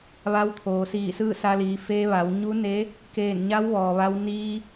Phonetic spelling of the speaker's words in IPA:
ʋ a˧˥ w t̪ʰ oː˩ s iː˧˩ s ɯː˥˨ s a˧ l iː˩˧ f eː˧ ʋ a˩˧ w ɲ u˧˥ n e˧˥ | k eː˧˩ n ɲ a˧˥ w ʋ ɔː˩ ʋ a˧ w n iː˧

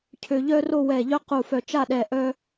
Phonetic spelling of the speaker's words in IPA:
cʰ ø˧ ʎ œ˥ r o˥˧ w ɛ˧˩ ʎ œ˥ q u˧˩ f œ˧˩ t͡ʃ a˥˧ ɗ ɛ˧ ʔ œ˥

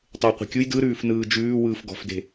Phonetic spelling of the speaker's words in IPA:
tˤ e w qʷ e̤ kʲ u j d ɯ ɾ ʉː f n ɯː d͡ʒ ʉː w ɯː f ɡ ɔ̤ f d e̤

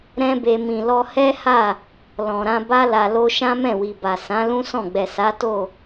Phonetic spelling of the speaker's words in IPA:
ɾ ɛ̃˦ b e˧ m ĩ˨ l ɔ˧ h ɛ˦ h a˦˨ | l ɔ̃˨ ɾ ã˧ b a˦ l a˧ l o˦ ʃ ã˦ m ɛ̃˦˨ w i˨ b a˨ s ã˨˦ l ũ˦ s ɔ̃˦˨ ɡ͡b ɛ˨ s a˨˦ t o˦˨

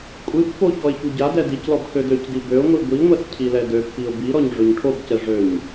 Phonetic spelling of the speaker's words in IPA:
kʷʼ ɨ pː o ç ɔ ɪ̯ ç u ɟ a d ɛ d i c l ɔ b x ø d ø c d i b ø ʊ̯ ŋʷ i ɡʷ i ŋʷ ɛ s cʰ i l ɛ d ø pː i ʊ̯ b i ɾ ɔ ɲ ʐ ø ɲ ʈʰ o b c ɛ ʐ ø ɲ

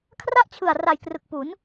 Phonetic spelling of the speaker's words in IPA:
kʰ r a˥˩ ʔ t͡ɕʰ ɯ˨˩ a̯ r a˨˩ j k r ɯ˨˩ k̚ p u˩˦ n

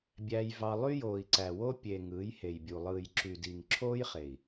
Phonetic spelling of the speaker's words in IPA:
bʲ æ˧ j v ɑ˧ lˠ y˦ j oː˨ i̯ ǀ æ˨ w o˦ pʲ e˨ ŋ ɯː˨˦ j h e˨ j bʲ u˨ lˠ ɯː˨ j ǁ y˨ d i˨ ŋ ǁʰ oː˦ j χ e˨ i̯

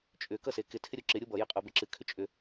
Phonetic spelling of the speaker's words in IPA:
t͡ʃʼ ʏ k ʌ s e k ɪ tʰ ɪ ɾʲ u ǁ ɪ ɾʲ u b ʌ j ɪ qʼ o b ɪ ǁ ɨ kʰ ʏ t͡ʃʼ ʏ

